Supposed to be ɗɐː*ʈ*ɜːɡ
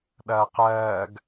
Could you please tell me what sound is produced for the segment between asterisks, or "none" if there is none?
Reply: q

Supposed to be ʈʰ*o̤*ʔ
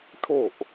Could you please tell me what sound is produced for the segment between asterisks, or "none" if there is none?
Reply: o̤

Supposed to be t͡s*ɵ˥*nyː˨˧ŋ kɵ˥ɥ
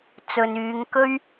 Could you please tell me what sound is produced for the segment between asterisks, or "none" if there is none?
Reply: ɵ˨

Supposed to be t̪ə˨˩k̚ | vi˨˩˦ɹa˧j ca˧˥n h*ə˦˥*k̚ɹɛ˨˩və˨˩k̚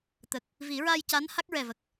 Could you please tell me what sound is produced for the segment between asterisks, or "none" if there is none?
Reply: a˦˥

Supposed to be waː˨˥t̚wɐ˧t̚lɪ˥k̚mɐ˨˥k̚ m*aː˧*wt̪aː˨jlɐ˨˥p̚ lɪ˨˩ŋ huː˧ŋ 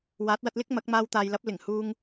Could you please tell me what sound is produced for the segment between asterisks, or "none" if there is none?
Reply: aː˧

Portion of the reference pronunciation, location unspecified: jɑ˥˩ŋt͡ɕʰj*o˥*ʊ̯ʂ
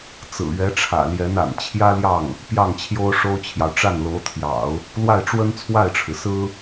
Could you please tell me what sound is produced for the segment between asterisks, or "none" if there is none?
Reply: o˥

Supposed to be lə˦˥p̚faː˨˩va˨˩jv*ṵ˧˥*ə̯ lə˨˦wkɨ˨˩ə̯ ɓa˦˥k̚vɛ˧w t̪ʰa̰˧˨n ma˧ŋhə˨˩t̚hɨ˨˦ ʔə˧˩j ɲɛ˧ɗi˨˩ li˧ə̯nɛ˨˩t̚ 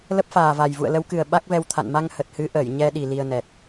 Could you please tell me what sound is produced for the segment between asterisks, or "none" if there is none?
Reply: ṵ˧˨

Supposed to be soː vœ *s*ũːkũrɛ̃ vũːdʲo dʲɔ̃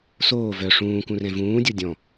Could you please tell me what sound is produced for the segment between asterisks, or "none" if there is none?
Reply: ʂ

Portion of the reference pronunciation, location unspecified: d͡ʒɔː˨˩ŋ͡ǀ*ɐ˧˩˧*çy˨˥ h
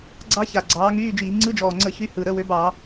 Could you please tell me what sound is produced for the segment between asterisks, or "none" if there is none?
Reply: ə˧˩˧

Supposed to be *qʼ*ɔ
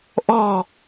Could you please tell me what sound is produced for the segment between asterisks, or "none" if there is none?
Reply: ʔ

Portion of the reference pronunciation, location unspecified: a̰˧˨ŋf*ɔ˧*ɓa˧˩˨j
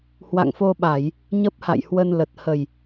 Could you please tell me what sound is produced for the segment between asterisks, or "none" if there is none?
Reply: o˧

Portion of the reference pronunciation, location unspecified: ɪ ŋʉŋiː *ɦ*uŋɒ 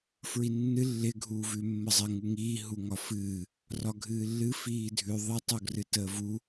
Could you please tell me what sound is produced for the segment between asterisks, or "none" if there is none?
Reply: ɦ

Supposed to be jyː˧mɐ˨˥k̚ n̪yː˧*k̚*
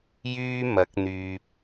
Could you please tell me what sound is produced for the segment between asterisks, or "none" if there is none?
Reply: p̚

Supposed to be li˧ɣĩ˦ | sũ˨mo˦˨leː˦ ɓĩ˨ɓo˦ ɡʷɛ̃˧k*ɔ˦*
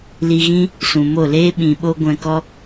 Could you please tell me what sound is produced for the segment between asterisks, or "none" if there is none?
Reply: ɔ˦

